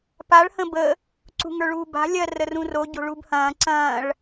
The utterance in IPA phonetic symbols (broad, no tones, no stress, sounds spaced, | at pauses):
p a ɭ h ə̃ b ə | ǀ ṳ ŋ ə˞ ɭ uː b a̤ lʲ ɜ r ə r ũ r o ɟ o̤ ɭ u b h ɐ̃ː ǀ ɐ̃ː ɭ